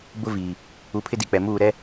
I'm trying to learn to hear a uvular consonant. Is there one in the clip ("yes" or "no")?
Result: no